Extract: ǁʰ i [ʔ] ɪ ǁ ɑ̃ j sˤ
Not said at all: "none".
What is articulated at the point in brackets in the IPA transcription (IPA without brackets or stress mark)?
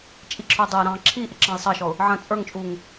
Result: ʔ